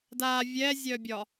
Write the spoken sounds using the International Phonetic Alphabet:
da vʲɛzʲœbʲɒ

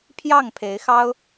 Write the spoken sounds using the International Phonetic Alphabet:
pʰjɑ˥˩ŋpʰe˧˥ɪ̯xɑ˥ʊ̯

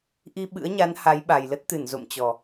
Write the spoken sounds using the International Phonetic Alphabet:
ʔi˧ɓɨ̰˧˥ə̯ɲa˨˦n ha˨˦jɓa˨˩jlə˦˥t̚t̪ɨ˧˩n zo̰˧˨mt͡ɕɔ˨˩

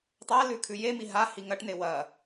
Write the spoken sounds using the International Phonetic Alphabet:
tˤalʉ kʰʉjemi ɦahi ŋɐʈne wɐ

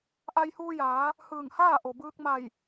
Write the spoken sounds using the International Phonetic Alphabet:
ʔa˧jhuː˧jaː˩˧ | hɯː˧˩ŋhaː˥˨ʔo˩bɯː˧k̚ ma˧˩j

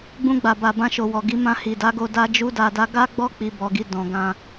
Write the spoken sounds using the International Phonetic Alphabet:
ɡ͡bũ˧ɡ͡ba˨ba˨ bã˧ʃo˨wɔ˨ɡi˨˦ mã˧hi˨da˨˦ɡo˧ da˦d͡ʒu˦da˧da˦ ɡa˦ɡ͡bɔ˦ k͡pi˧bɔ˧ɡi˧ dɔ̃˨ ɡã˧

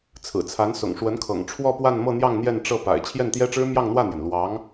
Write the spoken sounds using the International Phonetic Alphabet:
t͡sʰɹ̩˨˩t͡sʰa˧˥nsʊ̰˨˩ŋ ʂwə˧˥nkʰɤ̰˨˩ŋ ʈ͡ʂʰwɔ˥˧pwa˥˧nmɤ˥˧n̪jɑ˥˧ŋ n̪jɛ˥˧nʈ͡ʂɤ˥˩pa̰˨˩ɪ̯ t͡ɕʰjɛ˥˩nt̪jɛ˥ʈ͡ʂɻ̩˥ mjɑ˥˧ŋn̪wä˥˩n̪jɛ˩n lwɑ˧˥ŋ

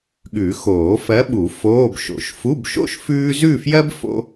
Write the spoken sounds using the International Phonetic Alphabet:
ɠʉ˨˩˦xoː˨˩˦fɜ˧˥ɓu˨˩˦ foː˧˥˧bʃo̰˨˩˦ʃ fu˧˥˧bʃo̰˥ʃ fʉː˥ zʉ˥˧fjɜ˥b fo̰˥

